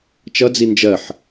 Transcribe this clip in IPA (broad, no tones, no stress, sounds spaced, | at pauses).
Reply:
t͡ʃ ʌ d͡z i n d͡ʒ ɜ ħ